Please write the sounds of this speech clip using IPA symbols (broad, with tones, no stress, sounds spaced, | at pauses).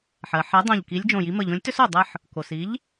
ħ ɜ˩ ħ ɜ˨˥ dˤ õ˧˩ ʎ k i˨˥ lʲ d͡ʒ õ˧˩ j i˨˥ m ə˧˩ ʎ õ˨˥ lʲ t ʏ˥ s o˧˩ dˤ ə˥ ħ | k o˩ s i˨˥ ʎ